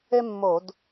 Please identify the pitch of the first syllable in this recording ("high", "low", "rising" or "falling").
high